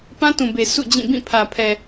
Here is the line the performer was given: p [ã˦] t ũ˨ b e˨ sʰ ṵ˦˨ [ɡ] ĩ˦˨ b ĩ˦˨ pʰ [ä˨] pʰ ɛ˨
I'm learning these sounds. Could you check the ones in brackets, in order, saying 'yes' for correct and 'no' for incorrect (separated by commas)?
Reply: yes, no, yes